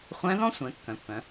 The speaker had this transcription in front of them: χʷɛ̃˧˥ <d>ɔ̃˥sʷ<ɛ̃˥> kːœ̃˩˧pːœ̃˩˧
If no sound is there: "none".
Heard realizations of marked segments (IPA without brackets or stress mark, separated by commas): ð, ɛ̃˩˧